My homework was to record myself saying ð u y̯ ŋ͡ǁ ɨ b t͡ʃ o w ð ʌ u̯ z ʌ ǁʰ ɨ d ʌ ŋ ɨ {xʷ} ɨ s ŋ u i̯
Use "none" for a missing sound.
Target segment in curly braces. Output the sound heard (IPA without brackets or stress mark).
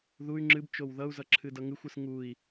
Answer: xʷ